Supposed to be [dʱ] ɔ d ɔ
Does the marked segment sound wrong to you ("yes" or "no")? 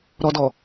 yes